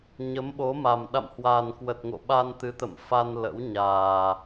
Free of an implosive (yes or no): no